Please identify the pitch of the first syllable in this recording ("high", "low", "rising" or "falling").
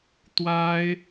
high